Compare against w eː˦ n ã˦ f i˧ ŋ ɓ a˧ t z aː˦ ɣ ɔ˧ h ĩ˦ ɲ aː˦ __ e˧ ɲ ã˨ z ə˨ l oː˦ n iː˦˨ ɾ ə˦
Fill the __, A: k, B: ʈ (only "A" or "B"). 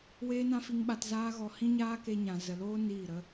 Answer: A